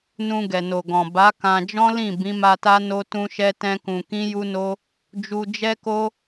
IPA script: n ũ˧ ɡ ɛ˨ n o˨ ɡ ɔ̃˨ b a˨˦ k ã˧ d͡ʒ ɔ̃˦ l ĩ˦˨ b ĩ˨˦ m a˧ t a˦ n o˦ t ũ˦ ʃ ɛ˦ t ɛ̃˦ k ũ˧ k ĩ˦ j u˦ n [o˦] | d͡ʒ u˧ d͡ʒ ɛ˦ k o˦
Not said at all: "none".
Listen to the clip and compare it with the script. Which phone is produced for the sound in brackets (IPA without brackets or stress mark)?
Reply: o˦